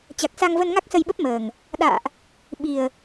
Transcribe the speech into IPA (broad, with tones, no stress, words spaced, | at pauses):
t͡ɕa˨˩k̚sa˧ŋvə˧nŋa˦˥k̚ sə˧jɓə˦˥p̚məː˨˩ŋ | ɗa̰ː˧˨ʔ | ɓi˨˩ə̯